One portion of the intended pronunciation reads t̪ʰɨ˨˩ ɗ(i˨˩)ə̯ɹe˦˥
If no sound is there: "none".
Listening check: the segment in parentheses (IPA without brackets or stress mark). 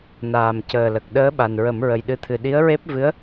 i˧˥